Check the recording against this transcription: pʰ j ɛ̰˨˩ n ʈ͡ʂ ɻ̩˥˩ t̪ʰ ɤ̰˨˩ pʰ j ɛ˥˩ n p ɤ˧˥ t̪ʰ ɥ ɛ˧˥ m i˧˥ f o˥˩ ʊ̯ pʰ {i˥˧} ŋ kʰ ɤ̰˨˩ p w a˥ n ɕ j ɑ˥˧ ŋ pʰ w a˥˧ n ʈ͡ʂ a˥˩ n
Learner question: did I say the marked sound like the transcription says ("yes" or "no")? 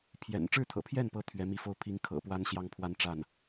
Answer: no